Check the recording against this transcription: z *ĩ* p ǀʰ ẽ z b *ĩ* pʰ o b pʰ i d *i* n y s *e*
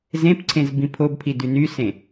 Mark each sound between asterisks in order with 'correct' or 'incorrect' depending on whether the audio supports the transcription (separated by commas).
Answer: incorrect, correct, incorrect, incorrect